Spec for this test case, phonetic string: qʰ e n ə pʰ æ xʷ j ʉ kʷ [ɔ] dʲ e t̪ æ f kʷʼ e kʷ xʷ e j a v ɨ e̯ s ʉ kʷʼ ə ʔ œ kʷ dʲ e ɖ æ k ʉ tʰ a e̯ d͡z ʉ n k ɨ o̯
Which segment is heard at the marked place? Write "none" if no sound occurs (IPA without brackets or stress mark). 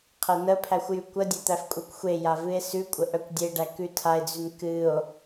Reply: ə